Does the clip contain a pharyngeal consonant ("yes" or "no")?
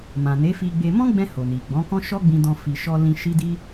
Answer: no